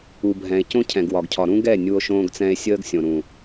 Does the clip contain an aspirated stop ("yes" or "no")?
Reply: yes